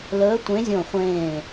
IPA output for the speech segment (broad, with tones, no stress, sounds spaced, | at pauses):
l əː˨˦ tʷ ẽ˨˦ zʲ õ˧˩ χʷ ẽː˧˩